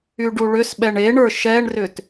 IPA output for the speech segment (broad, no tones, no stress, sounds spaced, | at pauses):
y ɖ u ɭ ʏ s ɓ ɛ ɳ e ɳ ə˞ ʃ ɛ ɳ r ʏ t